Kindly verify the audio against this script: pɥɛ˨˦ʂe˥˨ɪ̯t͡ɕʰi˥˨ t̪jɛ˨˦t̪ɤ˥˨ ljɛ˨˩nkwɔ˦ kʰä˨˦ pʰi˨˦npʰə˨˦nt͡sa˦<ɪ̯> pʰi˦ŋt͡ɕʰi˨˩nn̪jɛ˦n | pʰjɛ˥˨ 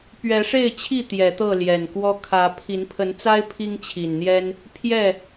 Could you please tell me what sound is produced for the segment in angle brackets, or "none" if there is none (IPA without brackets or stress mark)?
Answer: ɪ̯